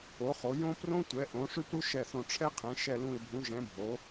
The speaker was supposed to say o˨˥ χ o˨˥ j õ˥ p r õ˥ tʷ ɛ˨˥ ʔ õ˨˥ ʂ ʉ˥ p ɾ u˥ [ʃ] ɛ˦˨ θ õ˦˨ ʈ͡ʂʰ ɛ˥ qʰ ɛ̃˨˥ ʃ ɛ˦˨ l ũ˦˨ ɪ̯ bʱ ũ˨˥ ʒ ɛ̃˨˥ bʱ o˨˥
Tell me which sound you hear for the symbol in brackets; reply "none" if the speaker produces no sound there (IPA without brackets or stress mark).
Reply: ʃ